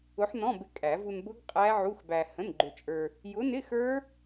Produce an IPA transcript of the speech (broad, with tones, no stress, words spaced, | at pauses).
ʊ˨˥ħnɔ̃˧˥˧bɪ˧ kʼæ˨˩˦ vu˧nbʊ˦˥ɡ qʼæ˦˥ʕu˧˥˧xbæ˧ hə̃˧˥˧nɡ͡ǃʊ˧t͡ʃʼə˞˧ | jʊ˨˥nɪ˧˥˧ xə˞˦˥